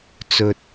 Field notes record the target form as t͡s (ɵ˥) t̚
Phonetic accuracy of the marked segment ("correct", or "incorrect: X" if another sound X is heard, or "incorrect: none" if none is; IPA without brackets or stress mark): incorrect: ɵ˨